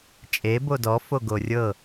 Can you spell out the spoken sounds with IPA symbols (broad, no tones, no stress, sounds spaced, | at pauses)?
t͡ʃʼ e b o d ɔ f o ɡ o rʲ ɤ